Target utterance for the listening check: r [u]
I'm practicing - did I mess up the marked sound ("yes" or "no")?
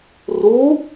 no